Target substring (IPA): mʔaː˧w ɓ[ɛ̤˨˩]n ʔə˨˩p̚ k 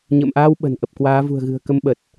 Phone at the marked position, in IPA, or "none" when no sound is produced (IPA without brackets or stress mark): ə̤˨˩